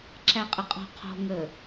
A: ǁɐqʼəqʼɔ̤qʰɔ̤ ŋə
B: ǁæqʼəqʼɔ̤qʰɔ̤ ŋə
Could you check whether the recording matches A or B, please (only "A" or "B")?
B